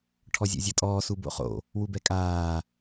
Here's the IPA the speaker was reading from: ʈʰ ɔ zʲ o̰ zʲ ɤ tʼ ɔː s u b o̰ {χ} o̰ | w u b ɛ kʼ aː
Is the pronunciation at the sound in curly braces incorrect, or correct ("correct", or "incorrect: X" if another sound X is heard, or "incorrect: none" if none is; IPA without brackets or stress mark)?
correct